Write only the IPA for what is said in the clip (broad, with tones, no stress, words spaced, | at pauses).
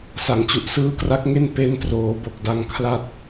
sa˩˦ŋt͡ɕu˨˩ʔ sɯː˦˥kra˦˥k̚ŋe˥˩n pe˦˥ntroː˩˦ bo˨˩k̚da˧ŋ kʰla˦˥t̚